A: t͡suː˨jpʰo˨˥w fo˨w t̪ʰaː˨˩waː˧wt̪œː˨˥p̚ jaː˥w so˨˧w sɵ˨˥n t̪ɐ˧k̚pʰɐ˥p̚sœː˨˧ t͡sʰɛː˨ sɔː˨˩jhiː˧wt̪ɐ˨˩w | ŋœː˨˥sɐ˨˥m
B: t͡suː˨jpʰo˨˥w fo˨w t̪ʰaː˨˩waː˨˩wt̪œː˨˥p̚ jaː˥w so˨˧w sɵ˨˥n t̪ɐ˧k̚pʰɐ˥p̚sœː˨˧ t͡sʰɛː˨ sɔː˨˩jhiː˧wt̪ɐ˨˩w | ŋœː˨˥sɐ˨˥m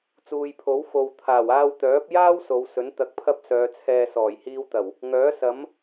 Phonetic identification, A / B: A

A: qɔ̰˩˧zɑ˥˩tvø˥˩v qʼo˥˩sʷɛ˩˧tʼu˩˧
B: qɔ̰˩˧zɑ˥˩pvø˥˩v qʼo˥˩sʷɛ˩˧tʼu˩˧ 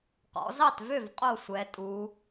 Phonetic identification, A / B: A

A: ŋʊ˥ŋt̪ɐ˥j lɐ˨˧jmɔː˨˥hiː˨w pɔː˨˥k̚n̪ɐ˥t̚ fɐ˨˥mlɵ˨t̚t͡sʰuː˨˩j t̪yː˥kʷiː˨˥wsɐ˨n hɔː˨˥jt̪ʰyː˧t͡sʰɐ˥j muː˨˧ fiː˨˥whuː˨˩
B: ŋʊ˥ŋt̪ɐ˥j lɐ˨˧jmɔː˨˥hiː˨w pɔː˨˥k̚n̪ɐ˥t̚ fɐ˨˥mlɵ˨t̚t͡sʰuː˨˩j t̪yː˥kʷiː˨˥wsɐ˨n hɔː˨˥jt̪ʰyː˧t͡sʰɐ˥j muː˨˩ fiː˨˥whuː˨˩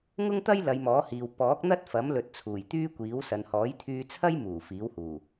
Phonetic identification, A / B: B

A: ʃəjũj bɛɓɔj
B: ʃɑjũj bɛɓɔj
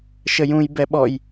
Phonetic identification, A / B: A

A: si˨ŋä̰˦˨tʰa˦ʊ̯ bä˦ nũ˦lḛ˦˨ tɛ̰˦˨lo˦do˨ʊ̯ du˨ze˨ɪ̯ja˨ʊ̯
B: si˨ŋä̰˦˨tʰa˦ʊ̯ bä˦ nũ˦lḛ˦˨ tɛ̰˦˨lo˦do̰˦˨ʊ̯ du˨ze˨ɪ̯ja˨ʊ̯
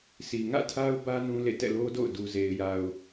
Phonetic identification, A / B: B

